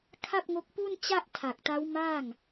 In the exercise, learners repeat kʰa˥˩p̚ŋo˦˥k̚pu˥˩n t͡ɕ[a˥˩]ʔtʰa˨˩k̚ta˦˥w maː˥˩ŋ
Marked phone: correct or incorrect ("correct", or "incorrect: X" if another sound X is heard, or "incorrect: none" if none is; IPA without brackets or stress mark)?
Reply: correct